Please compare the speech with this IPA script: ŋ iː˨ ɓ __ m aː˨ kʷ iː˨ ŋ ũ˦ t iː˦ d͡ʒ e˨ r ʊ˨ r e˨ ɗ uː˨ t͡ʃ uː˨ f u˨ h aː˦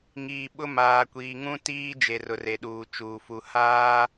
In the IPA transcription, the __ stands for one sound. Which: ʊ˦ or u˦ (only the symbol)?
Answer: ʊ˦